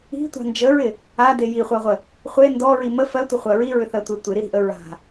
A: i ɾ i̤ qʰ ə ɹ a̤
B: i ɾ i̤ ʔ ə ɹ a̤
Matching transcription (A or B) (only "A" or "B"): B